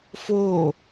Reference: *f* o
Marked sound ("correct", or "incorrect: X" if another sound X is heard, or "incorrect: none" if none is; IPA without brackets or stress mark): correct